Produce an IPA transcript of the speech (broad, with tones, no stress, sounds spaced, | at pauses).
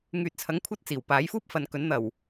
ŋ yː˨ t̚ t͡sʰ ɐ˨˥ ŋ kʷʰ ɐ˧ t̚ t͡s iː˨˩ w p aː˨˥ j f uː˥ p̚ f ɐ˨ n k ɵ˨˥ n n̪ ɐ˨˩ w